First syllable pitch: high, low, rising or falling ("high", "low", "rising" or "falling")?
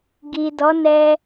low